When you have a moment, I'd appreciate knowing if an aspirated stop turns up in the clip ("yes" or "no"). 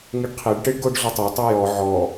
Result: yes